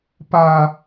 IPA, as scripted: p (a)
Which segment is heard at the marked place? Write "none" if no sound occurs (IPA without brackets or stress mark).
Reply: a